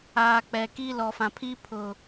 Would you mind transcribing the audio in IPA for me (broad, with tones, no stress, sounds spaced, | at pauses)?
aː˨ k͡p ɛ˨ k i˦ l ɔ˨ f ã˨ pʰ i˦ pʰ ʊ˨